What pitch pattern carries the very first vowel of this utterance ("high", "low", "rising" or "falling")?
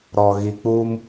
low